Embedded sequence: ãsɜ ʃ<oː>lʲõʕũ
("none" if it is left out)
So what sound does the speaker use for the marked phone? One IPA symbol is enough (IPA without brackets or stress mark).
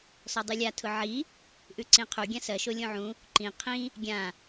o